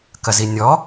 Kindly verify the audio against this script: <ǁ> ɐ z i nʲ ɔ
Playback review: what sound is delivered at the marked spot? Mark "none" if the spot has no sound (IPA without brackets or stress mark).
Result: k